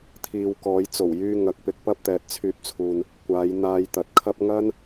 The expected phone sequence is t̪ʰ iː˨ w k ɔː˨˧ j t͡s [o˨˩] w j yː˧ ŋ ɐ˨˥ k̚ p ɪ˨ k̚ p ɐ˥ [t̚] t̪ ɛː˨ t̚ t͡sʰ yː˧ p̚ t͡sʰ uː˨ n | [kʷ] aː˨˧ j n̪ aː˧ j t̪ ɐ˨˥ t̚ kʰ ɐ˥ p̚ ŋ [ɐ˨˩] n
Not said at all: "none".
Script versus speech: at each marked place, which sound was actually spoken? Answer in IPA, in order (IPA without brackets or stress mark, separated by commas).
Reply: o˨˩, p̚, kʷ, ɐ˥